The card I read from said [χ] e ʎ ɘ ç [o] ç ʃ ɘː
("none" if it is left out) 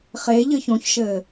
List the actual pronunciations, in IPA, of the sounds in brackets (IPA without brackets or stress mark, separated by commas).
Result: χ, õ